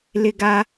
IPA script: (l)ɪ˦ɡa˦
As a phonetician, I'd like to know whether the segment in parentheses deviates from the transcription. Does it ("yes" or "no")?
no